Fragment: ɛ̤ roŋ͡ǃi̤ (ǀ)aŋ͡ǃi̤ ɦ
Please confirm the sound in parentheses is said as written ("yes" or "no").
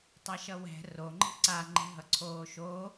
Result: yes